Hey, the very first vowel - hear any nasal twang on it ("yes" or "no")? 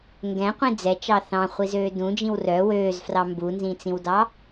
yes